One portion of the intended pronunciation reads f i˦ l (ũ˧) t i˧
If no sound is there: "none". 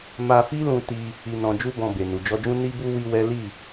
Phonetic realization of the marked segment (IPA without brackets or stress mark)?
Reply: ũ˧